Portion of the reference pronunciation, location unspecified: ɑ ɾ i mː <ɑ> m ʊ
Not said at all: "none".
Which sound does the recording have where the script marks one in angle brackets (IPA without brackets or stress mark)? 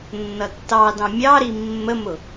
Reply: ə